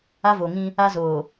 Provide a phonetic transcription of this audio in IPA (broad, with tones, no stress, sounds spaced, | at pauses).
a˦ v o˨ ŋ ĩ˦ | a˦ z oː˨